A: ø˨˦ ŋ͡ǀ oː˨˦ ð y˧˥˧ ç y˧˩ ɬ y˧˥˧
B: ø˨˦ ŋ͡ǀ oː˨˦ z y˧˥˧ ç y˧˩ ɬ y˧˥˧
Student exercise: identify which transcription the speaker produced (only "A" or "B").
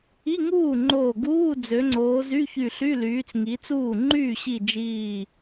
B